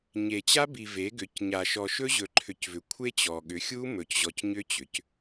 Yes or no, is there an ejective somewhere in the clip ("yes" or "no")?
no